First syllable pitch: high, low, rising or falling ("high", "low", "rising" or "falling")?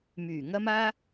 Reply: low